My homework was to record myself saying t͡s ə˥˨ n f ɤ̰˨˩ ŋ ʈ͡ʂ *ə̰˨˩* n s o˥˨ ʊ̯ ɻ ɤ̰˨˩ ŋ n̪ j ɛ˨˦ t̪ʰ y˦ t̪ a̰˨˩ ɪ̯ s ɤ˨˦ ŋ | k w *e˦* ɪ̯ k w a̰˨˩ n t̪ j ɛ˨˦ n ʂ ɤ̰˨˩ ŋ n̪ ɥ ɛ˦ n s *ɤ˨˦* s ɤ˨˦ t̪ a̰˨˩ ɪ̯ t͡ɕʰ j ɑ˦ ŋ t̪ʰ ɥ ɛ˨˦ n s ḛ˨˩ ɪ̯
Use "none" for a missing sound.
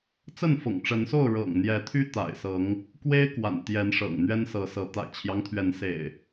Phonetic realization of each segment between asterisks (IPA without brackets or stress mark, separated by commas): ə˨˦, e˦, ɤ˨˦